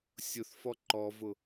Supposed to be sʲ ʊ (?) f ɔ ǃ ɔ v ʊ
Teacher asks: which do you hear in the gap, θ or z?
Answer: θ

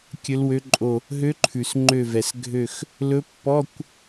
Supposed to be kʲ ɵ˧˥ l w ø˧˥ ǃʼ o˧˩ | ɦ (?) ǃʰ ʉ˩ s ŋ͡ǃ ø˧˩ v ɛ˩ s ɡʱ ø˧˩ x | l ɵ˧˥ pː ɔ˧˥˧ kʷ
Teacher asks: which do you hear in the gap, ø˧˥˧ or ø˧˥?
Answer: ø˧˥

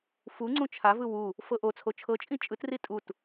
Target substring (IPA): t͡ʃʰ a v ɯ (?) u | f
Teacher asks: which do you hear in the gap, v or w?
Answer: w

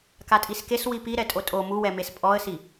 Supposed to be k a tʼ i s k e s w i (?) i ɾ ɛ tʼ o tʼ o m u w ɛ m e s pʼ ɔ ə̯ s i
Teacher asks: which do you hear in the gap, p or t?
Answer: p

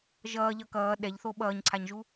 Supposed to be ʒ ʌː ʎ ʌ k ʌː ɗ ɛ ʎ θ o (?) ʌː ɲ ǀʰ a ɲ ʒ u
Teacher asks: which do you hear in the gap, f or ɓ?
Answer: ɓ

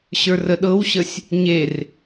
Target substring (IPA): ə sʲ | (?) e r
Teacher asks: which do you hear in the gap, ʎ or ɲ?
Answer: ɲ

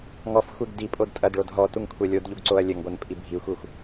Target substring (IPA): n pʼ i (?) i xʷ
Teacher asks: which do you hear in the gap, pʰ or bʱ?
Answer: bʱ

